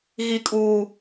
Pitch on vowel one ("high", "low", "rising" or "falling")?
low